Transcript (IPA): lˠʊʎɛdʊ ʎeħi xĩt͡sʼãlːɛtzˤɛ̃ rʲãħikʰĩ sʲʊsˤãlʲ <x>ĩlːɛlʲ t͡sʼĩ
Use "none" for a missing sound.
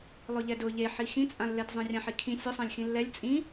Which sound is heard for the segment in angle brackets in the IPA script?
x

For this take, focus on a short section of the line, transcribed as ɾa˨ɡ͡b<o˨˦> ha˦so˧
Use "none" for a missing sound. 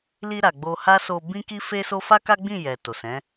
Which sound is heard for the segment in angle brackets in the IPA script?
o˧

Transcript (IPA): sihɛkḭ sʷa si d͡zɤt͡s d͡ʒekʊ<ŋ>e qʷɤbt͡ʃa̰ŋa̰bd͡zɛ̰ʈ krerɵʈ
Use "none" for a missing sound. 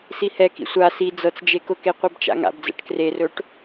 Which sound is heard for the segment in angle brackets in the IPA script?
k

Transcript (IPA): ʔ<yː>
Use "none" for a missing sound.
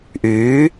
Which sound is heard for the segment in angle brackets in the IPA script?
yː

